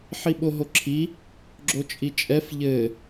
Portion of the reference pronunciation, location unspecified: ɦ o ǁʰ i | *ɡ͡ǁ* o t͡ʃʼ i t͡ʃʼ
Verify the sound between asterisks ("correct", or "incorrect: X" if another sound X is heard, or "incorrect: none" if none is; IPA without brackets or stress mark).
correct